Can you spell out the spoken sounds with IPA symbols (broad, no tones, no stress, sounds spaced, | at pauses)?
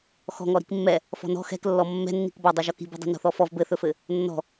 x ɔ̤ ŋ ɔ ɾ i̤ k mː ɛ | f ɔ̤ n ɔ̤ x ɛ̤ k lː ɔ mː ɛ̤ nː i̤ k b ɔ dˤ i ʒ ɔ k i̤ b ɛ̤ dˤ ɛ̤ n ɔ̤ θ ɔ f ɔ v b ɘ θ ɵ f ɘ | nː ɔ̤